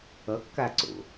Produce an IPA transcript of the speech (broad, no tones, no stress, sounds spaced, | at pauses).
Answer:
ʌ kː a ǀ o̰